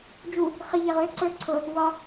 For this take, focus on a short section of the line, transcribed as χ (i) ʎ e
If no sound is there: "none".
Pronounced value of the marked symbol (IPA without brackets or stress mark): i